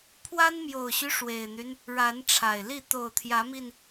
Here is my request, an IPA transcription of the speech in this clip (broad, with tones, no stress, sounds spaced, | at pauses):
pʰ w a˦ n m j o˨˩ ʊ̯ ɕ y˦ ʂ w e˨˩ ɪ̯ n̪ y˦ n | ɻ a˨˦ n ʈ͡ʂʰ a˨˩ ɪ̯ l i˥˨ t̪ o˨˩ ʊ̯ t̪ʰ j ä˨˦ m i˧ n